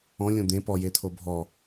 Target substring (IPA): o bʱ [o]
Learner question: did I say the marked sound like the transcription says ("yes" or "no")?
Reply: no